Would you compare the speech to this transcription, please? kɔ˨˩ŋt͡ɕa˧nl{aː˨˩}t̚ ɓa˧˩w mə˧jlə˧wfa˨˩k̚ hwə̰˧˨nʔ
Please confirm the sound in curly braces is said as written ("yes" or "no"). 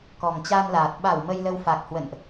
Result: yes